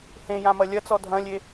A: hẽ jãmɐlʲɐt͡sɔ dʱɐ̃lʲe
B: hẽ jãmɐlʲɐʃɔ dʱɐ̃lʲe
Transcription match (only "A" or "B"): A